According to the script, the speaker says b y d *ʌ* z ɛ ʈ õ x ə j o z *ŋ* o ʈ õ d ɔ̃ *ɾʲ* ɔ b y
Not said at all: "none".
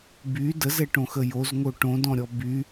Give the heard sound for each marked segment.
ə, ŋ, ɾʲ

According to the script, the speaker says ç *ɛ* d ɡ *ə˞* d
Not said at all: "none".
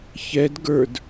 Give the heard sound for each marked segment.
ɛ, ə˞

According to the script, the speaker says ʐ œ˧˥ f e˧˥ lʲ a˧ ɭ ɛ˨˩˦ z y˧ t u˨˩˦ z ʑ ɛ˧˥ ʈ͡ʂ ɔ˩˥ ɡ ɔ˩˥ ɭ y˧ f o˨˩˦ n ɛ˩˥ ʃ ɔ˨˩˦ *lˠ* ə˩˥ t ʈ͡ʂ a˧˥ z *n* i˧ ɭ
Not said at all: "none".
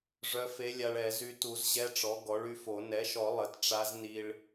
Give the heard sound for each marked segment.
lˠ, n

